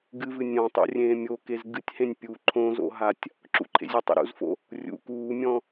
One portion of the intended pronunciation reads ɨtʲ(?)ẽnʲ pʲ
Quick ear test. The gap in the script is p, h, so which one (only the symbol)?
h